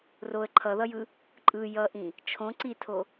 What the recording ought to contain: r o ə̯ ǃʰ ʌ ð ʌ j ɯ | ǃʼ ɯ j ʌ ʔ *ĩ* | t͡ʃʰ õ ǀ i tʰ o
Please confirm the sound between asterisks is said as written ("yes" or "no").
yes